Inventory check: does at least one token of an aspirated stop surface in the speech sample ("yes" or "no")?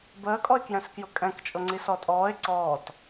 no